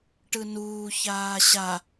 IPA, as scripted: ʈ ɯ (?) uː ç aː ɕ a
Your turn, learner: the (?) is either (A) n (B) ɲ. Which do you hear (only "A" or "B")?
A